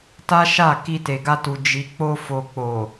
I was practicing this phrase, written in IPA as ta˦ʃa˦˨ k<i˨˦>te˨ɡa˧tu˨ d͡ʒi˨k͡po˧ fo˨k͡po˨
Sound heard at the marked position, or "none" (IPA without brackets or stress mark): i˧